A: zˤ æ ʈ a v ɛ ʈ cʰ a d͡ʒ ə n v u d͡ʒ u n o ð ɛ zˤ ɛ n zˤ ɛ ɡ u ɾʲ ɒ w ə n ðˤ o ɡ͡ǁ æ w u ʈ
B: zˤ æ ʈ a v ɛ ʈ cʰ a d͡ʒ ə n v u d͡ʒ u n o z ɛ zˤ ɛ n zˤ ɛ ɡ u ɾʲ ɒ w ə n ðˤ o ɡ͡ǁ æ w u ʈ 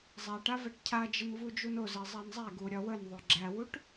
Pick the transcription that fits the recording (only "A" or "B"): B